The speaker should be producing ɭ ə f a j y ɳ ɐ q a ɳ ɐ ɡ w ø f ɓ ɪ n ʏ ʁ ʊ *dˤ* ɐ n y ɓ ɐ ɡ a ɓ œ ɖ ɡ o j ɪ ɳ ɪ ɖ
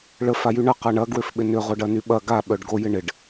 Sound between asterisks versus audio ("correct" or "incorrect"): incorrect